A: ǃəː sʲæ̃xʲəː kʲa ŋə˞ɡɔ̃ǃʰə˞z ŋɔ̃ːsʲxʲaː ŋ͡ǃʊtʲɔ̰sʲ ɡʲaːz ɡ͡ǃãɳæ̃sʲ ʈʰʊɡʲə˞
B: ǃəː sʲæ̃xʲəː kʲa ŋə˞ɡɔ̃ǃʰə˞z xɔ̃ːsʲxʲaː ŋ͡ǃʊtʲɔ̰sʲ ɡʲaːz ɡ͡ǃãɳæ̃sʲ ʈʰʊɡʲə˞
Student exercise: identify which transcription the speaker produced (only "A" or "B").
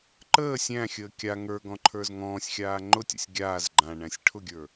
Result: A